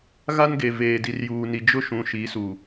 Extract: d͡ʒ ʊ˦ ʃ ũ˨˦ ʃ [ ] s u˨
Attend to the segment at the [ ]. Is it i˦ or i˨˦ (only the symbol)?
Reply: i˨˦